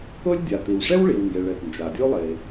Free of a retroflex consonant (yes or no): no